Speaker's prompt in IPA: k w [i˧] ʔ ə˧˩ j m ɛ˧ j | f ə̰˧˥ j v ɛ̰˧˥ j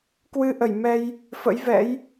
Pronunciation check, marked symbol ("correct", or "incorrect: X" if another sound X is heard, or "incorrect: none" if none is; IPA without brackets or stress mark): incorrect: ɨ˧